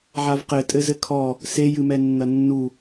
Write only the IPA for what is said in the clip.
ʕ a v q ɘ tʼ ɘ z ɘ kʰ ɔ | s e j ɨ m ɛ nː ɐ nː u

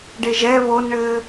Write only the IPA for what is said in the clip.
ɖ e ʒ ɛ β o n ɳ ɘː

